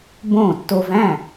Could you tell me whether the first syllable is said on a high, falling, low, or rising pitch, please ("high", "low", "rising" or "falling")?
falling